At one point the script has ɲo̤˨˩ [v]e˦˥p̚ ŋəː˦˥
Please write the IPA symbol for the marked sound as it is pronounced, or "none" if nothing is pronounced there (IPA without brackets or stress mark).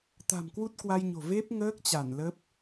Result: v